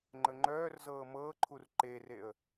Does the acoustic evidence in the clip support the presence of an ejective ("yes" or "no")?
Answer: no